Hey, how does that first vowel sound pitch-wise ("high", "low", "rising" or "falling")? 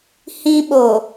high